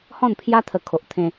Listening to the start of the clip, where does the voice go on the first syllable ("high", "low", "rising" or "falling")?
falling